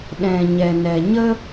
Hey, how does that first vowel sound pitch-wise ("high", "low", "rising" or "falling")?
low